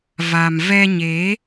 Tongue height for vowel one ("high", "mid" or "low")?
low